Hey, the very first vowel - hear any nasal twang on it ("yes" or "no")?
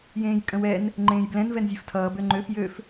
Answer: yes